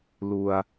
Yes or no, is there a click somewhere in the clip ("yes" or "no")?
no